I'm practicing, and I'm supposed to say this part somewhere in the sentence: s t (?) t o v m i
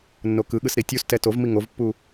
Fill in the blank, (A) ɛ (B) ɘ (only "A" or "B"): A